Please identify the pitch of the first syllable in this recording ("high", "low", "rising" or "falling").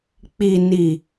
low